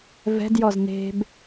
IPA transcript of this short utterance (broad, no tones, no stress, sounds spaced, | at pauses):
v ɛ̤ d j ɔ z n e̤ b